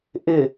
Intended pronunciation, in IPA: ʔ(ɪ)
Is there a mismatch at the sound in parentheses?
no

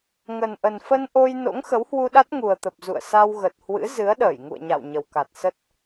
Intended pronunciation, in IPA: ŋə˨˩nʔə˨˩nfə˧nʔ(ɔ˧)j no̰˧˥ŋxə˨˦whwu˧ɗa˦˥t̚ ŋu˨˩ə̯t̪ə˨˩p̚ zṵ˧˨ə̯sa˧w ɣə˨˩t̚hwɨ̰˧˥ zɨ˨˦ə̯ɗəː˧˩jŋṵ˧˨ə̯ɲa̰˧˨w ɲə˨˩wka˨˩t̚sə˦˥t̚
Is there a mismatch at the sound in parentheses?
yes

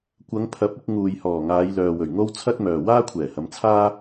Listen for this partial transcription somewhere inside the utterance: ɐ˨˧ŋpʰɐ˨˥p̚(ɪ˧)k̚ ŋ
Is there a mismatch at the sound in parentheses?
no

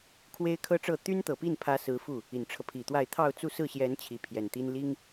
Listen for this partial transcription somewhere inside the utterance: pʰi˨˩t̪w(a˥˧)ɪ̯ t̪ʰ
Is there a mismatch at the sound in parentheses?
no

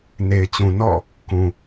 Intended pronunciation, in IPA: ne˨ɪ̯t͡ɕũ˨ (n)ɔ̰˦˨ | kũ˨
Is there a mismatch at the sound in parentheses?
no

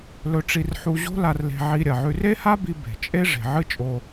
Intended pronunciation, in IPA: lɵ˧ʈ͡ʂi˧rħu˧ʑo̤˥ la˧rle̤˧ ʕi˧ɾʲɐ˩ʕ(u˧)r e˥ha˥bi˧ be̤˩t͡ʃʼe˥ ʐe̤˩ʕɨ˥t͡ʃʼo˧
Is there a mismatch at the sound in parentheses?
yes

